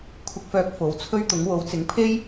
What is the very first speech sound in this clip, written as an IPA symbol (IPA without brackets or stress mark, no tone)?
kʷʰ